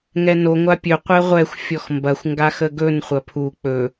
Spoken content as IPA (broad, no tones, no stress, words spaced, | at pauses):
ŋɛno ŋʷapʲɵ qʷɛʁʷɛxʷ fʲɔxmbɐxʷ ŋɡaxəɡɵn χʷɐpʰu k͡pɵ